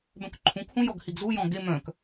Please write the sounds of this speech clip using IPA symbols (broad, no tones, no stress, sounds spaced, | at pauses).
b œ̃ k ǃʰ ũ k h ũ j ɔ ɡ h i ɡ z u j ɔ̃ ɡ e m œ̃ k